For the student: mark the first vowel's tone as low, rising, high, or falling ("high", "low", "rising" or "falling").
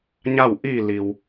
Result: falling